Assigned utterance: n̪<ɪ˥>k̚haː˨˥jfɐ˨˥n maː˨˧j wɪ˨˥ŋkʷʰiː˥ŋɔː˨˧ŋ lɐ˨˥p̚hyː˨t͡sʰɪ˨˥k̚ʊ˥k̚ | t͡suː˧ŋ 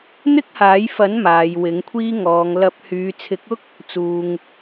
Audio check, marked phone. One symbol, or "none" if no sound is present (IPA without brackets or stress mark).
ɪ˥